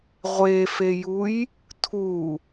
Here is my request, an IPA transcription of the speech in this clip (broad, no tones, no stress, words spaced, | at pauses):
ʁʷefejuj | tʰu